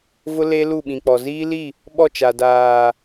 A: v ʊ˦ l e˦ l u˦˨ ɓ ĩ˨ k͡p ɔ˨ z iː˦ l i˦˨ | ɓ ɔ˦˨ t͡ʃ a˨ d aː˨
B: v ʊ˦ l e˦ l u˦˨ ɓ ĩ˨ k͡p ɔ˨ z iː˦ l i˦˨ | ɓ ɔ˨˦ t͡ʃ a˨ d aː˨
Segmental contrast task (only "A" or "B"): A